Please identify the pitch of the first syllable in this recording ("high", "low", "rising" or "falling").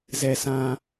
low